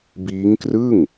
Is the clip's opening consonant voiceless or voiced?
voiced